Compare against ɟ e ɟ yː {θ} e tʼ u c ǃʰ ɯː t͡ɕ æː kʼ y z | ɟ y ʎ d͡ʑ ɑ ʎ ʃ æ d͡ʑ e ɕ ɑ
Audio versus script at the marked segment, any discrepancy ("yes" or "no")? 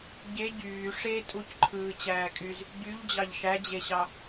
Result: yes